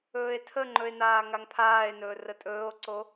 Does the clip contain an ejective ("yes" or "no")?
yes